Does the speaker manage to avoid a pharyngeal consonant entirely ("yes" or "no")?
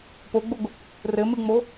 yes